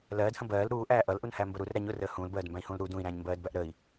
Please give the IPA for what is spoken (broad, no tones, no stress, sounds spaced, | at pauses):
l ɜː d h ə̃ b ɜː l ɾ uː ʔ æː ʔ ʌ l ʔ u n h æ m b ə ɾ u r ɾ æ ɲ ʊ r əː h ũː l b ɜː d m b æ̃ i̯ h ũː l ɾ u d ũ i̯ ɾ æ̃ː ɲ m b ɜː d b æ ʔ ɾ ə i̯